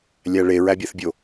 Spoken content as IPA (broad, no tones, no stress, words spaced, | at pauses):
lʲæɭe ɹæbʲæθbʲo